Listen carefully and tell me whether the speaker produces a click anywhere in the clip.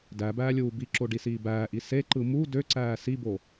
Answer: yes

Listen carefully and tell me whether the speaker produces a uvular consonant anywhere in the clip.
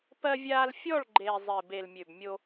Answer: no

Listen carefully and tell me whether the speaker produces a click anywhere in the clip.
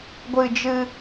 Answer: no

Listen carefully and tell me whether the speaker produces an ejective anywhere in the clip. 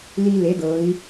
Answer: no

